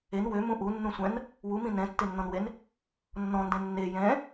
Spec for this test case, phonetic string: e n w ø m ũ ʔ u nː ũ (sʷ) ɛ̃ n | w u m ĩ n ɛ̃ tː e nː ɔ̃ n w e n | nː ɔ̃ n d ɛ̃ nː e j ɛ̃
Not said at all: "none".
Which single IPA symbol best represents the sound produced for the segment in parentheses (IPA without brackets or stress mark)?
sʷ